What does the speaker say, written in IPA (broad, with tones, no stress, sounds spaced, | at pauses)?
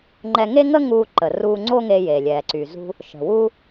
ŋ͡ǃ ɛ˧ ŋ e˥ ŋ ə˥ ŋ uː˧ ǃ ə˩ r uː˧ ŋ͡ǀ o˥ ŋ e˧ j e˩ lʲ ɛː˩ ǀ y˩ z ṳ˧ | ʃ ə̤˩ w u˧